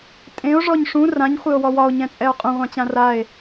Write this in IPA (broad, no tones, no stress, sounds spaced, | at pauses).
tʼ ẽ o̯ ʐ ɔ ɲ ʂ ũ r ã ɲ χʷ e o̯ w ɔ w ɒ o̯ ɲ ɛ̃ t͡sʼ ɛ o̯ qʼ ũ ʁʷ ã t͡ɕ ã r a e̯